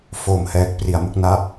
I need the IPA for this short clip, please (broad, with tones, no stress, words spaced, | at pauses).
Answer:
fo˨˩mhɛː˨˩k̚ pri˨˩a̯ mu˦˥k̚na˥˩p̚